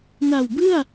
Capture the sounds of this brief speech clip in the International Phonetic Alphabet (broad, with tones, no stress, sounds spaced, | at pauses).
n a˨˩ w b ɯ˥˩ a̯